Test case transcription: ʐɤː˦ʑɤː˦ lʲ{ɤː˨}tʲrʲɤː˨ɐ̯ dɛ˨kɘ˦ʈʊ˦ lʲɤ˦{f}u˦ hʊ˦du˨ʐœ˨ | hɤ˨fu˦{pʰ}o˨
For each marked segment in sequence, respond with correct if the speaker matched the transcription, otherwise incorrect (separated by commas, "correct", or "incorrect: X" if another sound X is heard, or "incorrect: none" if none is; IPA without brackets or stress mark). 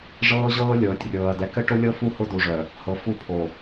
correct, correct, correct